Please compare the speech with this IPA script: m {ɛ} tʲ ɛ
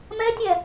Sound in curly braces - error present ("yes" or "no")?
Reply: no